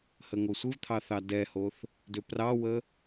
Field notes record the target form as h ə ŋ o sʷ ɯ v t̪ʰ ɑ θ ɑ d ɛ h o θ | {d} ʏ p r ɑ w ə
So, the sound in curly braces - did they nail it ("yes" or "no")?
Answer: yes